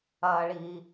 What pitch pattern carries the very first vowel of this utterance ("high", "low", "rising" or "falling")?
low